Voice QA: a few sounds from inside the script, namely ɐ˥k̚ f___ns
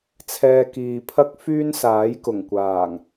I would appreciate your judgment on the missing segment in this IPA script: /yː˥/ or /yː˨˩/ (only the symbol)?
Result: yː˥